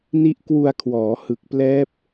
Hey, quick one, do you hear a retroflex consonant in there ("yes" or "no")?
no